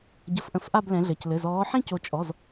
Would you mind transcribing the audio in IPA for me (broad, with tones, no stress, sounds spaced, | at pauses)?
ɟ ə˧˩ f ʔ ə̃˧˩ f ʔ a˥˧ b l ɛ̃˨˦ ɮ ɘ˩˧˩ c l ɘ˩˧˩ z ɔː˨˦ ħ ĩ˥˧ c o˨˦ t͡ʃʼ ɔ˩˧˩ z